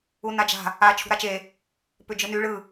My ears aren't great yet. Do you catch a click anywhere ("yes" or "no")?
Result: no